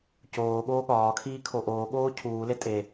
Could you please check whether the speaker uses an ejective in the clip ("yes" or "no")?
yes